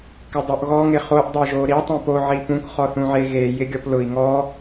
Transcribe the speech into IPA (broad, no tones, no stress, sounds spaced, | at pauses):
k ɪ dˤ o ʔ ɣ ɔ ŋ ɪ χ o ʔ dˤ e ʒ o ɾ i tˤ ĩ p o ʕ i p ũ k χ ɔ θ ũ ʕ e ɣ e j ɪ ɡʲ ɔ p l ʊ i̯ ŋ ɔ